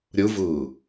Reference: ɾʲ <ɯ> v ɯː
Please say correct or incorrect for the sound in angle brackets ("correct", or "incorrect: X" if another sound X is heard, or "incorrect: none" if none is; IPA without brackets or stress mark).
correct